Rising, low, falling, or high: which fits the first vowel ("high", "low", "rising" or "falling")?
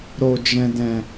low